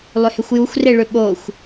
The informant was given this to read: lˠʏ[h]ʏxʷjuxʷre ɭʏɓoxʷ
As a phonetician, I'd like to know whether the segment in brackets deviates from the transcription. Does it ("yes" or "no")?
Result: no